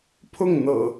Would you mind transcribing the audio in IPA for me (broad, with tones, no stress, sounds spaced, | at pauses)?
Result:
pʰ ʊ˥˨ ŋ n̪ ɤ̰˨˩